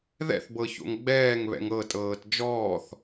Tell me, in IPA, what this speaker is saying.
ð ɛ̰ θ b ɤ ç o̰ ŋ ɡ͡b ɛː ŋ β ɛ̰ ŋ ɤ tʼ ɤː t d͡ʒ ɔː θ

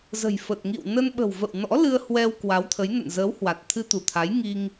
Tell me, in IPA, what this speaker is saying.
z ə̤˨˩ j f ə˨˩ t̚ ŋ ḭ˧˨ w n ə˧ n ɓ ə̤˨˩ w v ə̰˧˨ w n ɔ̰˧˥ l ɨ˧ ə̯ h w ɛ˧ w k w a˨˦ w t̪ʰ ə˨˦ j n ə̰˧˨ n z əː˨˦ w h w a˨˩ t̚ t̪ʰ ɨ˧ t̪ u˧˩ t̪ʰ a˨˦ j ŋ i˧ ŋ

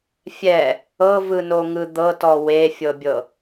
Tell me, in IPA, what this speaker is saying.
fʲ ɛ | ɤ v ɯ n o ŋ ɯ d̪ ɤ t ɔ w e fʲ ɤ bʲ ɤ

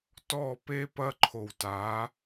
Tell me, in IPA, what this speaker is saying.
t ɔ˦˨ p e˦ p ɐ˦ ǃʰ o˨ w t a˨˦

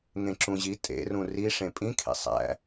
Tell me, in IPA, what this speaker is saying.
ŋ ẽ ǁ ũ ʑ i tʼ ḛ r ũ r i ʂ ẽ pʼ ĩ kʰ ḛ sˤ æ̰

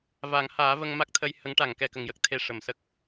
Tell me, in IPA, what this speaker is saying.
v a˨˩˦ ŋ h aː˨˩˦ v ə˧ ŋ m a˦˥ k̚ t̪ʰ ə˧ j h ə˧˥ ŋ ʈ a˨˩˨ ŋ k ɛ˨˩ k ə˨˩˨ ŋ j ə˨˩ k̚ t̪ʰ e˧ ʂ ə˨˩˨ m s ə˦˥ k̚

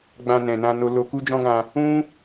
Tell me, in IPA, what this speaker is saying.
ɡ͡b ã˧ n ɛ̃˨ n ã˧ n o˧ l o˧ k u˦ d͡ʒ ɔ̃˦ ɡ ã˧ | ũ˦

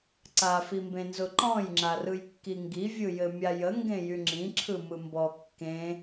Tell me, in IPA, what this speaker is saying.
ǀ a f i m b ẽ n z ʊ ǃ ɔ̃ j ŋ͡ǁ a r ɯ j kː i ŋ ɡ i vʲ ɯ j ɘ mʲ a j ə ŋ ɡ ẽ j y ŋ͡ǁ ĩ ǁʰ ɯ m ɯ m b ɔ kː ẽ

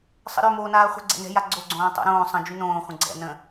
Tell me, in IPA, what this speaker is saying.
sˤ ə̰ ɾ ø m oː n aː χʷ ə̤ ɡ͡ǀ ɛ̰ n ɛ̤ j a ɡ͡ǀ o ɡ͡ǀ õː tˤ o̰ ɾ õː sˤ ə̃ d͡ʒ y n õː χʷ ə̃ ɡ͡ǀ ɛ̰ n ə̃

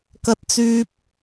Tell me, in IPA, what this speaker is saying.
k ɐ˥ t̚ t͡s yː˥ p̚

